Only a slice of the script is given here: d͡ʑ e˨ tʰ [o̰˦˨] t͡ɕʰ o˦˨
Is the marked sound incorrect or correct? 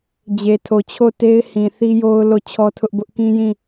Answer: incorrect: o˨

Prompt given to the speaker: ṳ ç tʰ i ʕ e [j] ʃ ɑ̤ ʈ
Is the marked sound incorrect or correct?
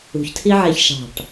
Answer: incorrect: ç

